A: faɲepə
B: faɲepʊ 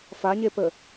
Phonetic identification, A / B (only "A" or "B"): A